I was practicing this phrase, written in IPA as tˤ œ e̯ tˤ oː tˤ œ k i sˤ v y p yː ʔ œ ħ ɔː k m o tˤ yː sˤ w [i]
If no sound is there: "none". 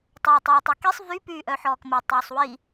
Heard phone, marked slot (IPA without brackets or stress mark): i